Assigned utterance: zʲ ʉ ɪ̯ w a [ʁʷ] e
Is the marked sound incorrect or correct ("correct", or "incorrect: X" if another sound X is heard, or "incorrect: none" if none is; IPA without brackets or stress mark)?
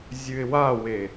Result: incorrect: w